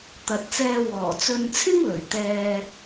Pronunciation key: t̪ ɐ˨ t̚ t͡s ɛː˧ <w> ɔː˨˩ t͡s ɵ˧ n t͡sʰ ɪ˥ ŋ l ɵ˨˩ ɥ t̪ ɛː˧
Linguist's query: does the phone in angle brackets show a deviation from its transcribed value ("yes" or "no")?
no